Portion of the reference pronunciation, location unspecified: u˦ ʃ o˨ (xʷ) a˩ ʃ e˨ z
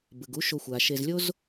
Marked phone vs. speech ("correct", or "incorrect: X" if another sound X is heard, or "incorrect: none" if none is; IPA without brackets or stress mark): correct